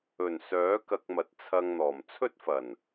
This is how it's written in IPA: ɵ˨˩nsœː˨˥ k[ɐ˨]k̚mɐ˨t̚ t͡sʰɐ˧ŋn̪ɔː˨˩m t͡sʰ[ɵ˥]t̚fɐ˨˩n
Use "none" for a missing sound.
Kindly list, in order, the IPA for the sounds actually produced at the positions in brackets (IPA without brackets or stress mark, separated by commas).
ɐ˧, ɵ˥